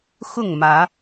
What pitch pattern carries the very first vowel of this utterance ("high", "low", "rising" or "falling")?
falling